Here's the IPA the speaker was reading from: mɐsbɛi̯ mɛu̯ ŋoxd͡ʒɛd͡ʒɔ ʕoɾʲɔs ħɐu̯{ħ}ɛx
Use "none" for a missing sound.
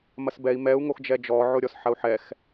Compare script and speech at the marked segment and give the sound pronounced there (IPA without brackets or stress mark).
ħ